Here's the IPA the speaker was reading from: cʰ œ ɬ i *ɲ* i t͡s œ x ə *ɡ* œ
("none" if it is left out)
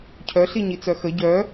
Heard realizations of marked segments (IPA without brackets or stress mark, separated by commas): ɲ, ɟ